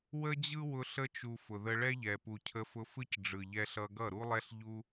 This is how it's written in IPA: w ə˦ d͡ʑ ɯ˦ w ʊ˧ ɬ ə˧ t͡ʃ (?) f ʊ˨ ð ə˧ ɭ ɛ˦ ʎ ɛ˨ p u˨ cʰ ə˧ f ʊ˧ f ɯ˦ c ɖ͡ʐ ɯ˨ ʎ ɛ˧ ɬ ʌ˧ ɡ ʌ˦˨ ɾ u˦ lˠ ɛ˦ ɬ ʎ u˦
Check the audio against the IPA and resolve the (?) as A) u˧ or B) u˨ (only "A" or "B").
B